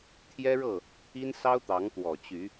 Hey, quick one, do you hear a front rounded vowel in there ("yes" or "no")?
yes